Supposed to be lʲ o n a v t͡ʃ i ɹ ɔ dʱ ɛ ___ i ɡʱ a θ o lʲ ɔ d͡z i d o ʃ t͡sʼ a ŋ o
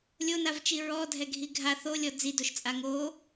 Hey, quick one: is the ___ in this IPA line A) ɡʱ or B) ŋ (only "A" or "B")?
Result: A